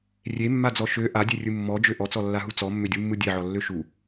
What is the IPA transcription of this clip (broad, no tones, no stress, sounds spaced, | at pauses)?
rʲ e mː a d͡z ɔ ʃ ø ʔ a dʲ e rʲ ɯ mː ɔ d͡ʒ ø ʔ ɔ t͡s ɔ lː a ɦ u t͡s ɔ mː ʏ dʲ u mː ɯ dʲ e ʕ ɔ lː ø ʃ u